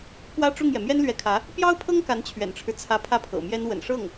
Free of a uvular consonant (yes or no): yes